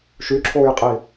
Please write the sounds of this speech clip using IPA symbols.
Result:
ʃ y ǁʰ oː j qʼ iː

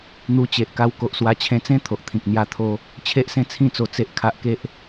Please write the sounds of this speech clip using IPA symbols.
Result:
n̪ u˧ t͡ɕ e˨ ʔ k a˧ w k o˨ ʔ s w a˧ t͡ɕʰ ẽ˧ t͡s ẽ˦ t̪ʰ o˨ ʔ t̪ʰ ĩ˨ k̚ n̪ j a˧ t̪ʰ o˧ | t͡ɕʰ e˦ ʔ s ẽ˥˧ t͡sʰ ĩ˥˧ t͡s o˧ t͡s e˦ ʔ kʰ a˦ ʔ k e˦ ʔ

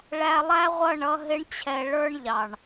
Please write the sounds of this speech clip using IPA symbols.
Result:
ɭ æ˧ lˠ æ˦ ʁʷ ʌ˦˨ ɳ ʌ˧ ɦ ɪ˦ ɳ t͡ɕʰ ɛ˧ ɭ ə˞˦ ɳ ʎ ɑ˨ ɳ

